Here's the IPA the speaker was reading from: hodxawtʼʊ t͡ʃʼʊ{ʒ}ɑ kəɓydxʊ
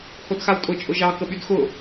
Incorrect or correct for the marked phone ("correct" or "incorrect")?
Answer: correct